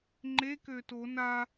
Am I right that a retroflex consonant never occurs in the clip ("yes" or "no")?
yes